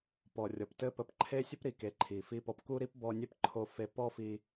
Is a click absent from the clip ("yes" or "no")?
no